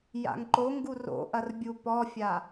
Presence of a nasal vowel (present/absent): absent